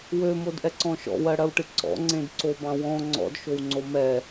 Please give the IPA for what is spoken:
wømodʔɛǀɔ̃ ʃɔ̰wɜɽɜwʈɨ ǀɔ̰ŋ͡ǀẽdǀobɑ̃ wɔ̃ ŋ͡ǀɔ̰dʃowŋ͡ǀo mɛ

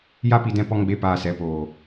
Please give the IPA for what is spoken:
ja˦pi˧dɛ̃˧ pɔ˧ŋɡ͡be˨˦paː˨ sɛ˨˦poː˨

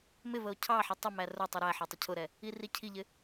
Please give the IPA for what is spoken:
mɪvəo̯ cʰɑħi tˤɪmæ rʊ tˤuɾæħə˞ tˤɪcʰʊɾɛ | iricʰiʎɪ

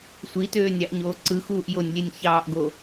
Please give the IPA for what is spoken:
sʷitøːnʲɑʔɲoː ǀɯxuːʔ jonʲlʲenʲ çɑːʔɡo

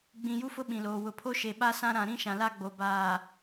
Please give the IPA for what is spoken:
ɡ͡bĩ˨ju˦fʊ˦ ɓĩ˨loː˨ wʊ˨pʰo˦ʃe˨ ɓa˦sã˦ɾã˨ ɾĩ˦ ʃã˨la˦ɡ͡bo˨ baː˨

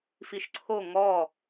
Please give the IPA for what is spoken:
fiʃǀʰo ŋɔ

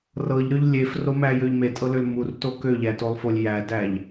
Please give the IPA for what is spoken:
rɤʎɾøʎ lʲefromæjøʎ metʼɤløl murto køʎætolˠfolʲ jædæʎ

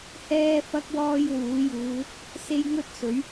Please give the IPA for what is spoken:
hɛː˥ fɐ˥k̚ wɔː˧j wuː˨˥juː˨˧ | se˥jŋɵ˥t̚sɵ˨˥ɥ

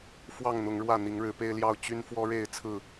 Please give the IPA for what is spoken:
fwɑ˥˨ŋn̪ʊ˨˦ŋɻwä˥˨ n̪i˨˦ŋɻɻ̩˨˦pe˦ɪ̯ljɑ˥˨ʊ̯ t͡ɕy˦n fwɔ˦ɻe˥˨ɪ̯t͡sʰɹ̩˥˨

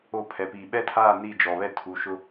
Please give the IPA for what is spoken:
o˦˨pʰɛ˨piː˨ ɓɛ˦tʰaː˦˨ ni˦˨d͡ʒɔ˨βɛ˦tʰuː˨ ʃʊ˦

